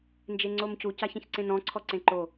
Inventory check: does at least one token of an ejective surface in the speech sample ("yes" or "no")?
no